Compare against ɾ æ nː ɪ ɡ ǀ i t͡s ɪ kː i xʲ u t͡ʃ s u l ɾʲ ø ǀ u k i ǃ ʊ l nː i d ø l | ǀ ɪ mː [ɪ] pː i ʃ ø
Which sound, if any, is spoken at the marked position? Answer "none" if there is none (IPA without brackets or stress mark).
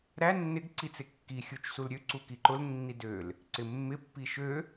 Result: ɪ